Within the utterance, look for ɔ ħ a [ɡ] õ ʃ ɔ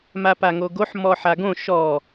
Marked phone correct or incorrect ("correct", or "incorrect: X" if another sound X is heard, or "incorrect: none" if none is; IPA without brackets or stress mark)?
correct